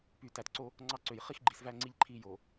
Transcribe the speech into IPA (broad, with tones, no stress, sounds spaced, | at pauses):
p y˨ t æ˨ t ǀ o˦ | ŋ͡ǀ ɑ˦ ǀ ø˨ j χ i˦ x ɡ͡ǃ i˨ s v æ˦ ŋ͡ǀ i˦ ʎ ǃʰ i˦˨ j o˨